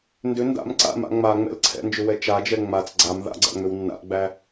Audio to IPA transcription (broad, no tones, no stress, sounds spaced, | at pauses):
n d ʏ n d a̰ m ǀ a̰ m a̰ ŋ͡m a ŋ͡m ɛ̰ l ǀʰ ɛ̰ n d͡ʒ ʏ w ɛ t͡ʃ a d͡ʒ ɛ ŋ͡m a t͡s ɡ͡ǀ a m ð a̰ ɡ͡ǀ æ̰ ŋ͡m ʏ w nː a̰ ʔ ɡ͡b æ